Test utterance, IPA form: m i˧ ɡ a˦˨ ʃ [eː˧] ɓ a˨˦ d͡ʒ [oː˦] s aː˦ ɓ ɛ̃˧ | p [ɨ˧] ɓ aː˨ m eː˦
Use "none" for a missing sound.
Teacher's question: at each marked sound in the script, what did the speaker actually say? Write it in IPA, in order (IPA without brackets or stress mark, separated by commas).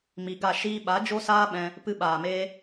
iː˧, o˦, ɨ˧